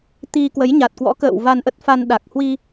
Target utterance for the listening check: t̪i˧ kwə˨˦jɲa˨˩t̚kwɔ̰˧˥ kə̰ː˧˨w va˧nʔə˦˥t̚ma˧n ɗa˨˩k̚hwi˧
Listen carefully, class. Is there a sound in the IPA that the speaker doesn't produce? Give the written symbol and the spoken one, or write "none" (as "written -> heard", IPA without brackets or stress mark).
m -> f